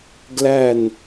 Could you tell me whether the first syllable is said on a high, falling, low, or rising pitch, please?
falling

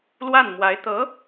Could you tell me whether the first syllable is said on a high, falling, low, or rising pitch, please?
falling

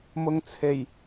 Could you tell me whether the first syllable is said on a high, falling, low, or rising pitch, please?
low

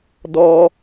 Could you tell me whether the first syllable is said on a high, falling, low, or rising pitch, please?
high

